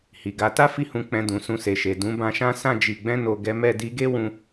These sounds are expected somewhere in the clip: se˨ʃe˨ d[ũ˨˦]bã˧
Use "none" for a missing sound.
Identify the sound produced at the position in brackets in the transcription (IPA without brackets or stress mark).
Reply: ũ˨˦